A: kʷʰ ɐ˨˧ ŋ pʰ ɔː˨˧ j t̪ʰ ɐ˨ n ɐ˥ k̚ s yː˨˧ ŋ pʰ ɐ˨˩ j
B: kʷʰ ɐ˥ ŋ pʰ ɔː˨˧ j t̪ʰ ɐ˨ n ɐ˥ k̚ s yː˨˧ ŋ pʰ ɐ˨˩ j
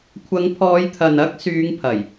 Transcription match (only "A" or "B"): A